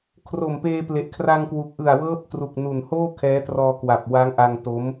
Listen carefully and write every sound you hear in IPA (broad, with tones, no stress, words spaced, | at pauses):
kʰro˨˩mpeː˧ple˨˩ʔ kʰra˧ŋkwu˨˩k̚ʔɯ˨˩a̯ wɤː˦˥p̚tru˨˩k̚nu˨˩n hoː˥˩kʰɛː˦˥trɔː˧ kwa˨˩p̚wa˦˥ŋʔa˧ŋto˦˥m